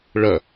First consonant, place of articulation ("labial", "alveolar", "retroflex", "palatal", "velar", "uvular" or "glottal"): retroflex